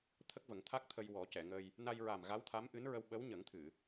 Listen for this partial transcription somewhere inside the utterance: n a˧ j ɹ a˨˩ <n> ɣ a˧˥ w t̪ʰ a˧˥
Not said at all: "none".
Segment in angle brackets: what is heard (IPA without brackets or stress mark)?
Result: m